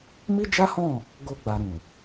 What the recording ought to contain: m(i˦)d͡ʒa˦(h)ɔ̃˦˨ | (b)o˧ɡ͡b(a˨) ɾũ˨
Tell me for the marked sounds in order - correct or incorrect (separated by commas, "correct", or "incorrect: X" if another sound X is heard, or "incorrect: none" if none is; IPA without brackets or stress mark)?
correct, correct, incorrect: ɡ, correct